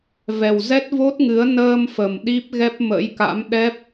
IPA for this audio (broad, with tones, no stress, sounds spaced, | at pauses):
v ɛ˨˩ w z ɛ˦˥ t̚ v o˦˥ t̚ ŋ ɨ˨˦ ə̯ n əː˧ m f ə˨˩ m ɗ i˦˥ p̚ ɣ ɛ˦˥ p̚ m ə̰˧˥ j k a̰˧˥ m ɗ ɛ˦˥ p̚